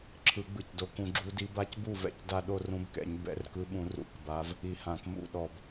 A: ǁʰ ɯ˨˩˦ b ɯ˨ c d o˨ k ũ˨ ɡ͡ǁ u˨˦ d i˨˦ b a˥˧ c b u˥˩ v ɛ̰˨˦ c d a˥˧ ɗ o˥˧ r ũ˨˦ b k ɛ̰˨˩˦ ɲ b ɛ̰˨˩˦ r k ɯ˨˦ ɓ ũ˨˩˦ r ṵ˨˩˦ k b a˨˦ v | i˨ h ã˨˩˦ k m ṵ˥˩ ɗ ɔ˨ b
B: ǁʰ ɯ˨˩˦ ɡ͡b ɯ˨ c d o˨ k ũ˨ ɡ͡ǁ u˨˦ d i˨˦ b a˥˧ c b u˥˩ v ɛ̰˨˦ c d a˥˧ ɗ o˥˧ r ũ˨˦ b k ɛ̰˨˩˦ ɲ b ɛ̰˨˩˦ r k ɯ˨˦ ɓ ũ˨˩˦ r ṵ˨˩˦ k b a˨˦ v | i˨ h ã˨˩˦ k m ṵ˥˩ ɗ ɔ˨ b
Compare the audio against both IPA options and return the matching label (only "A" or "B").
B